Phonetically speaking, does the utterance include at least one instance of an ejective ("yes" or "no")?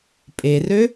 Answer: yes